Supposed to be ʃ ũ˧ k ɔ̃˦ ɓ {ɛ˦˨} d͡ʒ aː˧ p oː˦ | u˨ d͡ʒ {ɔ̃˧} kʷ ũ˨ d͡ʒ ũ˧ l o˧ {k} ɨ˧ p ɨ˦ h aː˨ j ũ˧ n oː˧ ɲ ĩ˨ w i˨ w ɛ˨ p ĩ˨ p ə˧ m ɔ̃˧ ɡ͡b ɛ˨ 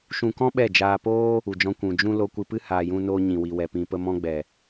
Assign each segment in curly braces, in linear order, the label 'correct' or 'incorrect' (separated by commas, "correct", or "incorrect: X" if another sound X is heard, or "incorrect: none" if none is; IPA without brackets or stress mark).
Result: correct, correct, incorrect: kʷ